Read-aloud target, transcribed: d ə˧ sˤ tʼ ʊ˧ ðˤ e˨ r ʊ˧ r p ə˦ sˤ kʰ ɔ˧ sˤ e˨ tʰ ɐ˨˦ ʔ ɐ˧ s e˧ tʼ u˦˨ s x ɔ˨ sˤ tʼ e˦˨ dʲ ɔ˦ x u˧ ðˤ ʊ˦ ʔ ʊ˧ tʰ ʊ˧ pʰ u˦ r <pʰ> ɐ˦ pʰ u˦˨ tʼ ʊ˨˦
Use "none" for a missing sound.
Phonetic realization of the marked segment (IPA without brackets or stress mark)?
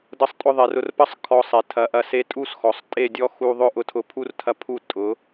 tʰ